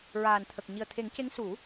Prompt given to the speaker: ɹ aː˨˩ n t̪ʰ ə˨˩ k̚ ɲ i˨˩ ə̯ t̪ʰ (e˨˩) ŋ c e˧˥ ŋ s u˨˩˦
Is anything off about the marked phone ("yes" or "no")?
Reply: yes